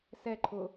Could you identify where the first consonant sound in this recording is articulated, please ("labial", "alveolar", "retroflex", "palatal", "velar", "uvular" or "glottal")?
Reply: alveolar